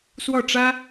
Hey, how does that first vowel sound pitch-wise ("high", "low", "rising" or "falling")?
falling